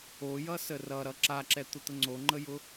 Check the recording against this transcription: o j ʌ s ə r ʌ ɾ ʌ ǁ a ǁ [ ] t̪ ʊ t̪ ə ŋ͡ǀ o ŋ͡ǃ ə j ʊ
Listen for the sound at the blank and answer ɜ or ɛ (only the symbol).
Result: ɛ